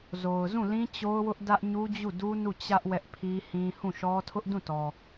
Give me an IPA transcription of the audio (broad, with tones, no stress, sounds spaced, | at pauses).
z o˨ ʊ̯ z ũ˦˨ l ĩ˦ t͡ɕ o˦ ʊ̯ w ʊ˦ ʔ d ä˦ ʔ ɲ u˦ d͡ʑ u˦˨ d u˦ n u˦˨ t͡ɕ ä˦ ʔ w ɛ˦ ʔ pʰ i˦ h ĩ˦ h ũ˦˨ ʃ ɔ˦ tʰ ʊ˦ ʔ d ũ˦˨ t ɔ˨